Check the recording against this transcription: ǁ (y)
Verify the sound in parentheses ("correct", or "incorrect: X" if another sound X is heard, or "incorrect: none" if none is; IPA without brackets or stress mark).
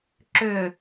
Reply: incorrect: ʏ